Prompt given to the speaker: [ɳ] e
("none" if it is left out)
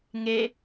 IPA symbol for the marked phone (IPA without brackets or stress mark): ŋ